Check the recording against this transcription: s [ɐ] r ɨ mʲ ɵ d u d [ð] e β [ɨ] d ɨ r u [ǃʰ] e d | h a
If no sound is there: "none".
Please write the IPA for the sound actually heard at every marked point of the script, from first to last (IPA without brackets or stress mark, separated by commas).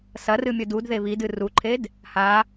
ɐ, ð, i, ǃʰ